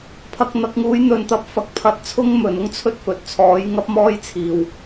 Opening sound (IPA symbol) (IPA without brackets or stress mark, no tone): pʰ